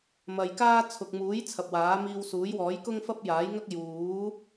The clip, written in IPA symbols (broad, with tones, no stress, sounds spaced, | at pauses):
m ɐ˨ j k aː˥ t͡sʰ ʊ˨ k̚ m uː˨˥ j t͡sʰ ɐ˨ p̚ w aː˨˥ m iː˧ w s uː˨˥ j w ɔː˨˥ j k ʊ˥ ŋ f ɐ˥ p̚ j aː˨˥ j ŋ ɐ˥ k̚ j uː˨˥